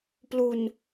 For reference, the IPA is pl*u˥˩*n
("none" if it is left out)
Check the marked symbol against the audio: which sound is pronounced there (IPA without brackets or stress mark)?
u˧